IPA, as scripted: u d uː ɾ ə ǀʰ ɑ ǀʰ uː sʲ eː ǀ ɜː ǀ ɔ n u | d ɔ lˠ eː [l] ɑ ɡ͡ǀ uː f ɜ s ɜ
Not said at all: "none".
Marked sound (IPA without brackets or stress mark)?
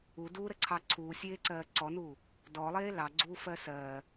l